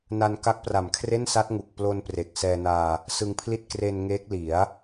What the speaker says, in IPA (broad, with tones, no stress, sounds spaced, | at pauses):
n a˧ n k a˦˥ k̚ p r a˨˩ m kʰ r e˥˩ n s a˦˥ t̚ ŋ u˨˩ k̚ p l o˧ n p r e˨˩ k̚ s ɛː˧ n aː˧ | s ɯ˧ ŋ pʰ l i˥˩ t̚ k r e˧ n ŋ eː˦˥ k̚ l i˩˦ a̯